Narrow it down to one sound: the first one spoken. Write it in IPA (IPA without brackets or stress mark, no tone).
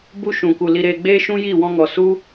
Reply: b